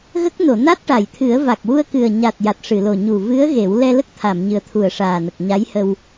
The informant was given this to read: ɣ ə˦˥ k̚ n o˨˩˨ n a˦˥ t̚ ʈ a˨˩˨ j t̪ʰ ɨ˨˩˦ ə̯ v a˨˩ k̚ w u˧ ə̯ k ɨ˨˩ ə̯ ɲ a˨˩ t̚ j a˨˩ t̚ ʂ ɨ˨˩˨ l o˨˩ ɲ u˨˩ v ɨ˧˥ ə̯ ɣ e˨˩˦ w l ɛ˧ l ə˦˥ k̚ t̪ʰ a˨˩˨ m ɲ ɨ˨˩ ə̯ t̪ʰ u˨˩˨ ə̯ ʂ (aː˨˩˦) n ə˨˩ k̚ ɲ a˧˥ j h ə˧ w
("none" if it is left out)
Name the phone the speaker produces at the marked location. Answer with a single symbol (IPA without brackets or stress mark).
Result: aː˨˩